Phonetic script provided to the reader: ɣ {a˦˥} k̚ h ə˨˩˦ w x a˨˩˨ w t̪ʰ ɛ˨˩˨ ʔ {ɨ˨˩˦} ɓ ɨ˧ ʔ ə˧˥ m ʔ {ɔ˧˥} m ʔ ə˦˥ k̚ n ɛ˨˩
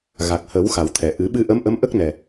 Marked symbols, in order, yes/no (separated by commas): no, yes, no